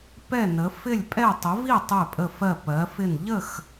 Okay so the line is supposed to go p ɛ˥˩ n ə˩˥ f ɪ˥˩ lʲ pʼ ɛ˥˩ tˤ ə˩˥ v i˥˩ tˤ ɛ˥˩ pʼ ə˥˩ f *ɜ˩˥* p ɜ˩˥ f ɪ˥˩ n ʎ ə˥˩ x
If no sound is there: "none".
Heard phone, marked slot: ɜ˥˩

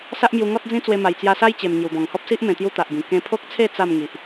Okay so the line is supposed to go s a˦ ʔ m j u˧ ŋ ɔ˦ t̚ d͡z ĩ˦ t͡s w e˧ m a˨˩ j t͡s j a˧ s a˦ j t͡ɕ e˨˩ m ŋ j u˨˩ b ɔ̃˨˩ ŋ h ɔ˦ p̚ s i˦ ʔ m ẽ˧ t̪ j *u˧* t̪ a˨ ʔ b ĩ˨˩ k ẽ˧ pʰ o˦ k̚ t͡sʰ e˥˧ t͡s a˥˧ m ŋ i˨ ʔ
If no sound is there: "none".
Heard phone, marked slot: u˦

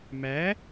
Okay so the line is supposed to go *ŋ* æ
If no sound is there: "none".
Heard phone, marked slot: m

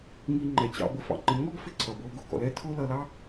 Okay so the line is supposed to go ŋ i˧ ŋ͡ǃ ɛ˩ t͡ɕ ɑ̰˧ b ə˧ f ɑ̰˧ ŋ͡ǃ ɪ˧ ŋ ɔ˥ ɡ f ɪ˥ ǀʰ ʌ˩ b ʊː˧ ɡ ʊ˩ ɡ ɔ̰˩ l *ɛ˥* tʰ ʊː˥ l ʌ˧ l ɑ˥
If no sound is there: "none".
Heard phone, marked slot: ɛ˥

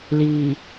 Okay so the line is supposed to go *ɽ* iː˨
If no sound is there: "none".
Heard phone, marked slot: l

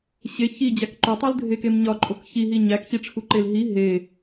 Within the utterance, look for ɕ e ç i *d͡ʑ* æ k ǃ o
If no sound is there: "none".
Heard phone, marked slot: d͡ʑ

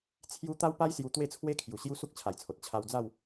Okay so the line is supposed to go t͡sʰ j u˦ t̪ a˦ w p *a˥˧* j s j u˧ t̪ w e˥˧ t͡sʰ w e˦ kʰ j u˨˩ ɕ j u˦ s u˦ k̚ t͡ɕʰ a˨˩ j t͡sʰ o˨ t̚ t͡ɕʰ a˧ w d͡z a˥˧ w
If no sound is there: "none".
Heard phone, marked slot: a˦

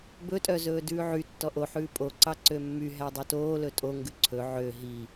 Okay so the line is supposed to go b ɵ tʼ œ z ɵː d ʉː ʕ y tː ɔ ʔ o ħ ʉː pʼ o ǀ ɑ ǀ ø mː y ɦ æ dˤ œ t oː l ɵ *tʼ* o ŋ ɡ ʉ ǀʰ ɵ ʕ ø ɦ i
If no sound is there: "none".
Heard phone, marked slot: tʼ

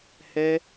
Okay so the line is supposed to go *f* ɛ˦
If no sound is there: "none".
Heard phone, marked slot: h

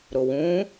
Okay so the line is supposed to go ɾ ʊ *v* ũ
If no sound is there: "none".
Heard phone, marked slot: w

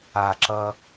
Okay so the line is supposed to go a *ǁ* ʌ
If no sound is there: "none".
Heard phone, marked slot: ǁ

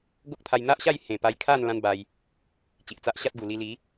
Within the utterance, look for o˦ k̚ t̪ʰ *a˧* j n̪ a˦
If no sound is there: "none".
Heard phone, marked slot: a˧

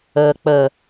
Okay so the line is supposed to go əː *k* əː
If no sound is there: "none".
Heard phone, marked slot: k͡p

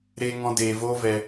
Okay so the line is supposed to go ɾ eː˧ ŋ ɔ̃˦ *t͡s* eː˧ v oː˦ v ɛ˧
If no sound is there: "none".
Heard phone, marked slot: d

